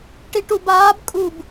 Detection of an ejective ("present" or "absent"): present